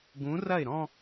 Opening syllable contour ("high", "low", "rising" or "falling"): rising